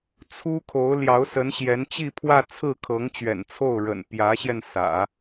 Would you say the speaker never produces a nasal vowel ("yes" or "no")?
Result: yes